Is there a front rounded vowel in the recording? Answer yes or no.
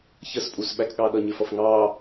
no